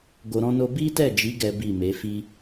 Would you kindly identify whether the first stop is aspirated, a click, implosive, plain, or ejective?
plain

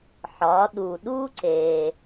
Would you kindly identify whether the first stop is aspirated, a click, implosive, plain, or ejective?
implosive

